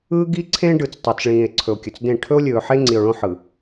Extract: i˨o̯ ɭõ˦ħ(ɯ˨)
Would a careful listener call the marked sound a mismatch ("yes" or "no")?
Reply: no